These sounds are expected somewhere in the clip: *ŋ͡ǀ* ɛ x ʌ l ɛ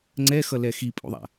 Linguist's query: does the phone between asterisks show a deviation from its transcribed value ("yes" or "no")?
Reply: no